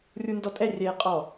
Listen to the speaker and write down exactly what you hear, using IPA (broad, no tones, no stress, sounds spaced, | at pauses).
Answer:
rʲ u n d ɔ tʼ ɛ rʲ ɛː qʼ ɔ